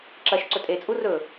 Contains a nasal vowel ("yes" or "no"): no